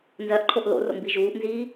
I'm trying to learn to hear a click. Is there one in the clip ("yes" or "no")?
yes